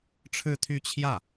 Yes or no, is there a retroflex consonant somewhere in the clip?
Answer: yes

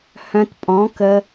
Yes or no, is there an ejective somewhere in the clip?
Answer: yes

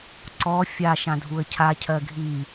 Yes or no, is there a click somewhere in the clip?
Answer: yes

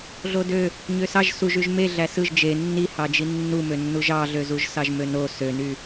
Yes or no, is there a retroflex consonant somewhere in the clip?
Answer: no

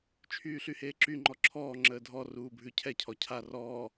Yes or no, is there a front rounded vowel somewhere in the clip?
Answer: yes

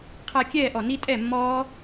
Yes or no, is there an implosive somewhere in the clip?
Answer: no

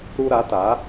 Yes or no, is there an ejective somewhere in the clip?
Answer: no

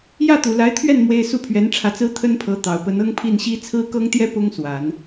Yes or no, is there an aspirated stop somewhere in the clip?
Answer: yes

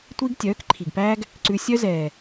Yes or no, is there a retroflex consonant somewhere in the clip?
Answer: no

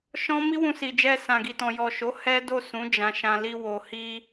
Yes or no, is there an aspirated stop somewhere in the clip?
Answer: no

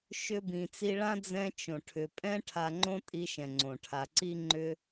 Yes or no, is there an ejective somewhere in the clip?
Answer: yes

